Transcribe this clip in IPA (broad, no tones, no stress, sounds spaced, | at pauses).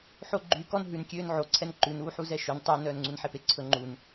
ħ o ɡ͡ǃ y k ɔ n ɦ ʉ n kʲ øː n ʕ o ǀʰ ɛ n ǃ ʉ n uː ħ u z ɛ ʃ ø n tˤ œ n œː n ŋ͡ǀ u n ħ e p e ǀʰ ɵ ŋ͡ǃ u n